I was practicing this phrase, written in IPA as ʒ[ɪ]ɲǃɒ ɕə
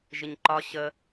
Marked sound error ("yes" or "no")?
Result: no